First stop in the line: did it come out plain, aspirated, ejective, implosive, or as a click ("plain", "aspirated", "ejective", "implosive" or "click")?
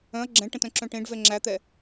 click